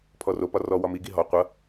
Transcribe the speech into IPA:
pʰ ɔ r o p ɒ r ɔ w ɒ m i ɡ i ɦ ɔ qʷ ʌ

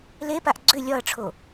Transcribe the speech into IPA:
l e p a ʔ ɡ͡ǀ ʏ lʲ ɒ ɐ̯ ʈ͡ʂʰ o

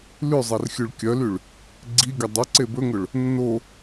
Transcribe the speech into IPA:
l ʉ zˤ ɛ r xʲ ʉ ɭ kʲ œ l y ɭ | ɡ͡ǀ i ɡʲ œ dˤ ø ǀ e b ɵ ŋ ɵ ɭ | nː o

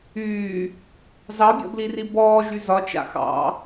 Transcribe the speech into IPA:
yː | z ɑ bʲ ɔ̰ b l i r i b ɔː ʒ y z ɒ t͡ʃ a̰ x ɑ̰

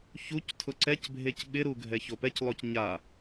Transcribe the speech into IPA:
ç u c tʰ ʊ ǀ ɛ c bʱ e c ɓ ɪ ɾ u ɡʱ ɛ ç o p ɛ c lˠ o c ɲ a

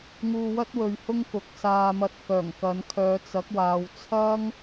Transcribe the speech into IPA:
ŋ uː˧ w ɐ˥ t̚ w ɵ˨ ɥ h ʊ˥ ŋ k ʊ˨ k̚ s aː˧ m ɐ˧ t̚ k œː˨˩ ŋ k ɐ˨˧ n kʰ œː˨ t͡s ɐ˨˥ k̚ w aː˨ w t͡sʰ ɐ˥ ŋ

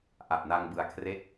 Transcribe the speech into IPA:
ʔ a˨˩ p̚ n a˧ ŋ b ɯ˨˩ a̯ kʰ r e˦˥ k̚

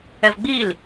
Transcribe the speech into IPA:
ɛ v ɡ͡b i l

